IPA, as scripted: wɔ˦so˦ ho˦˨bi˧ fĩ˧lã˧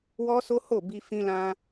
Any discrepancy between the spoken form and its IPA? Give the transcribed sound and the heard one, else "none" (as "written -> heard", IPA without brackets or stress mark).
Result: none